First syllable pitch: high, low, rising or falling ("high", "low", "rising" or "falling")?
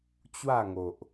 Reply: falling